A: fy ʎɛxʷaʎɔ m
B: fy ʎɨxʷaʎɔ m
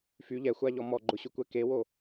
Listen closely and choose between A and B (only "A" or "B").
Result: A